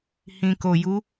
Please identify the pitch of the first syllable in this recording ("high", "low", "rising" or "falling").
low